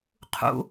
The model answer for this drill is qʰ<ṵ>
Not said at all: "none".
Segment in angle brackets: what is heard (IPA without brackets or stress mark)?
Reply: ṵ